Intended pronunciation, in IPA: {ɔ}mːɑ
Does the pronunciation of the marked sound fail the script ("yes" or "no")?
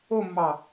yes